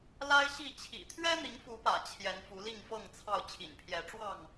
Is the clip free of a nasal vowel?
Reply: yes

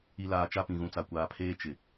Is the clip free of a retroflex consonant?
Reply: yes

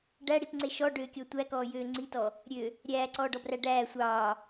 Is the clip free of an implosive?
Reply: yes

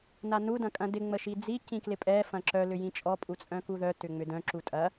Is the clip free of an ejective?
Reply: no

